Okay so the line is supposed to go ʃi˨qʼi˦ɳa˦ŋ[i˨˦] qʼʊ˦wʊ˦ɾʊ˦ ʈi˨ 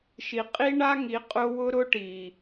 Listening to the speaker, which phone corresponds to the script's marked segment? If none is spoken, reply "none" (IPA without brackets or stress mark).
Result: i˨˦